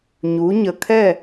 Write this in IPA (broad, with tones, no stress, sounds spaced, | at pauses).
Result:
ɲ u˩˧ ɲ ə˨˩ kʰ ɛ˥˨